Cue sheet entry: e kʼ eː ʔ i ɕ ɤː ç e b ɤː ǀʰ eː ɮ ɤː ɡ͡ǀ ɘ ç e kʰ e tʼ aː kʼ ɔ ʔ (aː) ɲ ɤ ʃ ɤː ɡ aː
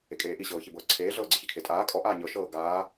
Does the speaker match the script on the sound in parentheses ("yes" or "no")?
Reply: yes